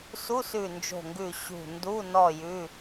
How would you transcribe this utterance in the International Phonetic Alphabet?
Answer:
su˧˥˧sʉ˧˩ nd͡ʒo̤˧˩ŋɡʉ˧˩ ɕṳ˧˩ ndu˧˥˧ nɔ˥˧jʉ˧˥˧

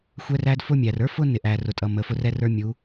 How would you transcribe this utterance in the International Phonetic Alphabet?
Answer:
xʷɛ˦ræ˦d fʊ˦mʲæ˨r ə˞˦fʊ˦ nɪ˨ʔæ˨ rʊ˨tʼʌ˨mə˨fʊ˦r ɛ˦rə˞˦mʲu˨˦

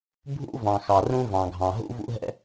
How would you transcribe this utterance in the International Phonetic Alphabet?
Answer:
bʱṵ˥vɑ̃˩ xɑ˩rũ˥ vɑ̃˩ɡʱɑ̃˩ɦṵ˥ vṵ˥ɦɛ̰˥

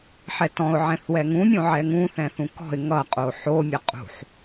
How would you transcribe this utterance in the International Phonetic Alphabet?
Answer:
ħɛtɔ̃ʊ̯ʕɛ̃θwɛ ŋũmʲõʕɛ ŋũ θɛ̃θũkɔ̤ɪ̯ ŋʌqʼo ħomʲʌ qʼṳħ

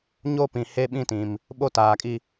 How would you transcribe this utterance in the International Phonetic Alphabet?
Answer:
ɲo˦ pĩ˨ he˦ɓĩ˦˨tĩ˨m | ɓo˦taː˨kʼi˦

